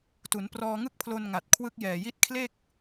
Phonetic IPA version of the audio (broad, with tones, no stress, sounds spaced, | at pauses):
t u˩˦ n p r ɔː˧ ŋ ɯ˥˩ k̚ pʰ l o˧ n ŋ a˨˩ t̚ kʰ w ɯ˦˥ k̚ j ɛː˨˩ j i˦˥ t̚ kʰ l e˥˩ k̚